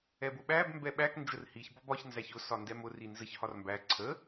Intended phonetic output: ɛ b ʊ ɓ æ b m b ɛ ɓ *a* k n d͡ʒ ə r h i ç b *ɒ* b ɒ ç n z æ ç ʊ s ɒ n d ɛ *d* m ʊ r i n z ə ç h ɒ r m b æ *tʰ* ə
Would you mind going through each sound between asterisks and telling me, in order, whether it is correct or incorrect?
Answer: incorrect: æ, correct, incorrect: none, incorrect: ǀʰ

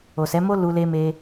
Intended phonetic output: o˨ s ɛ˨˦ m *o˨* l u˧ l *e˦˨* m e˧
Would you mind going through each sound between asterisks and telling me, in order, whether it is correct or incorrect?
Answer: incorrect: o˦, incorrect: e˧

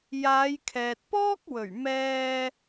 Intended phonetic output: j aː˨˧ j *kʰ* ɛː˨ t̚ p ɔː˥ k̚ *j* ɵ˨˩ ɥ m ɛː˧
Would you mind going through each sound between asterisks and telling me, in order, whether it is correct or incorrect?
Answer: correct, incorrect: w

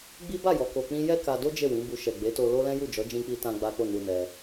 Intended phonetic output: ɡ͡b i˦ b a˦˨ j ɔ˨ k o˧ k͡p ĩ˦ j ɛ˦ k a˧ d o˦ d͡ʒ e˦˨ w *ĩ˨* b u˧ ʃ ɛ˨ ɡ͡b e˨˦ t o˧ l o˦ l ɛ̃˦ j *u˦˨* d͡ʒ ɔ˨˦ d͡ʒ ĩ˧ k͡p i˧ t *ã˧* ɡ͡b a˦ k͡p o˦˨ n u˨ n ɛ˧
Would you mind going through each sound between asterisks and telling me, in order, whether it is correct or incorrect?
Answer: incorrect: ĩ˨˦, correct, correct

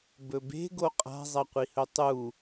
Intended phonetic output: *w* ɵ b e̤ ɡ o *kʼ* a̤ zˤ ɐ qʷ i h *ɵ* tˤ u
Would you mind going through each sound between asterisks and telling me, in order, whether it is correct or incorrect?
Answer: incorrect: b, incorrect: qʼ, correct

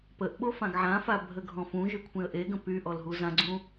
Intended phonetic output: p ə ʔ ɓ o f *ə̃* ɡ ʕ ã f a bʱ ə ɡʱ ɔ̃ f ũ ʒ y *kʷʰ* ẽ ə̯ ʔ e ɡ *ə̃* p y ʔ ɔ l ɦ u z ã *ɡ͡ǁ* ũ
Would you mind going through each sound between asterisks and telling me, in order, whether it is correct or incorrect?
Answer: incorrect: ã, correct, correct, incorrect: ɡ͡ǀ

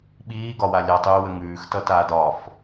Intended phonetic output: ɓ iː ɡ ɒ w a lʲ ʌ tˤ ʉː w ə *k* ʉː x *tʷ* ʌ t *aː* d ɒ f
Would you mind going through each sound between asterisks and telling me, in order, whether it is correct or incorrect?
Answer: incorrect: ŋ, incorrect: t, correct

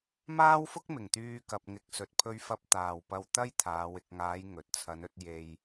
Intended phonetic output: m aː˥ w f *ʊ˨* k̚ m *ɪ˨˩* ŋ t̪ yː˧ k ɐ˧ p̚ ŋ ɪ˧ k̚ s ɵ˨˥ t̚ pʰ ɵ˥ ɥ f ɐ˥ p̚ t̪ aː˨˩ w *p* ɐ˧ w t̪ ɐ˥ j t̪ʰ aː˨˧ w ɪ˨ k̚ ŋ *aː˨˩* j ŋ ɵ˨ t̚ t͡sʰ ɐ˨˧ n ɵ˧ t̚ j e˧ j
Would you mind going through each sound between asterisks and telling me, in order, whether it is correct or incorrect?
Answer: incorrect: ʊ˥, correct, correct, incorrect: aː˨˧

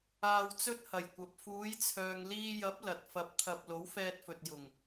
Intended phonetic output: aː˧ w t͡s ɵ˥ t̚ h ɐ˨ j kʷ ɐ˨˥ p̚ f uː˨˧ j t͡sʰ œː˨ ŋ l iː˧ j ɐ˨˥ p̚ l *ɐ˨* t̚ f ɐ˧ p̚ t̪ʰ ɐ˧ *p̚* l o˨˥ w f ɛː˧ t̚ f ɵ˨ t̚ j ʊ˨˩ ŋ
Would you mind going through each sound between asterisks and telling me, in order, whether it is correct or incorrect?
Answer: correct, correct

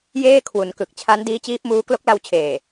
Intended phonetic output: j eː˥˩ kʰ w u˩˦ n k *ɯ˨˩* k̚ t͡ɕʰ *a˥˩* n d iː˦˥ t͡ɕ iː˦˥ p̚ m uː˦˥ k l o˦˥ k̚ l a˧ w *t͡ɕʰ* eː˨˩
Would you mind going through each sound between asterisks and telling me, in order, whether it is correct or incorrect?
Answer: correct, incorrect: a˦˥, correct

